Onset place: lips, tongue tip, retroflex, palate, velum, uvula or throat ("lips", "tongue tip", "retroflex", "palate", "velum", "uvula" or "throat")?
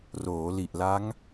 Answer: tongue tip